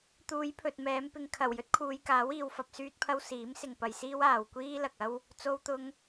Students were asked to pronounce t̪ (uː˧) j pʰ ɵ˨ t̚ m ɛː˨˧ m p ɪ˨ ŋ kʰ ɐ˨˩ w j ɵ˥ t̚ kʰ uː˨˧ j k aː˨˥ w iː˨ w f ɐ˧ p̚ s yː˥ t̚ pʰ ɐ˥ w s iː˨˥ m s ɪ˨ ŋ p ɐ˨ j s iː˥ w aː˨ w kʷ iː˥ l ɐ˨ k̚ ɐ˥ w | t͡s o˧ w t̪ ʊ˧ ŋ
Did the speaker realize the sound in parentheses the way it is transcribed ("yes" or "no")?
no